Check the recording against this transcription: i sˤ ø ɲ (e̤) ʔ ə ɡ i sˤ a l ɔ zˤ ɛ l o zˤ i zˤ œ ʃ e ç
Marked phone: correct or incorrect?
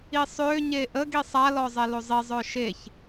incorrect